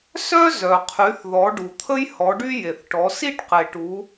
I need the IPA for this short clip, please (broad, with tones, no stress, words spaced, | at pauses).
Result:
sœ˦ zœ˩qʰy˩˧θðɔ˩˧ ɖu˩t̪ʰə˦jhɔ˩˧ɖy˦ je˩θʈɔ˩˧ si˦ʈqe˩ʈu˩˧